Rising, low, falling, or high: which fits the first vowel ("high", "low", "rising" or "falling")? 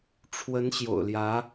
rising